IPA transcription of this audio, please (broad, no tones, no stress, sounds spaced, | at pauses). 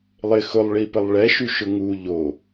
lˠ ɪ x ʊ lˠ ɭ i p ə lˠ ɭ ɛ ʃ y ʃ ʊ ŋ u ʎ o